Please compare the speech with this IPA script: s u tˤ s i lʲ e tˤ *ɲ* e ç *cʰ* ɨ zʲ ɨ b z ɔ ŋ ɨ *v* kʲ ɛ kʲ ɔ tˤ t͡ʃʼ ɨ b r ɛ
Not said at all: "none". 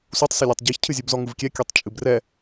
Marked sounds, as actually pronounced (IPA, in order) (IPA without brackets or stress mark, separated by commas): ɟ, cʰ, v